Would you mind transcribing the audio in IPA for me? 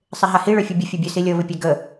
sˤeɦahi ɭœfʲubʲə fʲɛbʲœsilʲɤ βɪpʲeɡə

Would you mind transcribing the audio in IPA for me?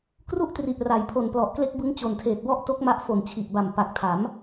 kru˥˩ʔtri˨˩ʔra˩˦j pʰo˨˩nplɔ˨˩ʔkle˦˥k̚ bɯ˦˥ŋt͡ɕo˨˩ntʰeː˨˩t̚wɔ˥˩ʔ to˦˥k̚ma˦˥ʔ fo˨˩nt͡ɕʰi˨˩ʔba˨˩m pa˨˩k̚tʰa˩˦m

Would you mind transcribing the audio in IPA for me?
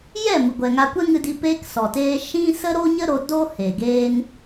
jɛ˦˨mɨ˨ɡʷɛ˨ ŋa˧kʷɛ˦ŋɨ˧di˧ peː˧ksɔ˨teː˧ ʃĩ˦ sə˦ɾo˦ɲə˦ɾo˧ do˦ he˨ɡeː˦n

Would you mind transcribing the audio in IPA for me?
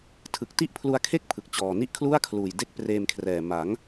tʰɯ˨˩k̚ti˥˩ʔpʰlu˧a̯kʰe˥˩k̚ pʰɯ˨˩k̚t͡ɕɔː˨˩ni˥˩ʔ kʰlu˥˩a̯kʰluː˨˩j de˥˩k̚preː˧mkʰrɛː˨˩ ma˩˦ŋ

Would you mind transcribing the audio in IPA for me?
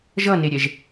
ʒʌneɾʲɛʒ

